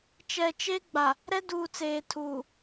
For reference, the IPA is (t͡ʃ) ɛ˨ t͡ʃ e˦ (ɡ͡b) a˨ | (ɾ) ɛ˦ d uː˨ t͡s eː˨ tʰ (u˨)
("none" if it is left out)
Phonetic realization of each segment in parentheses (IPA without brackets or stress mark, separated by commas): t͡ʃ, ɡ͡b, ɾ, uː˨